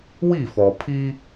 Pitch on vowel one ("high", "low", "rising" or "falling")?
falling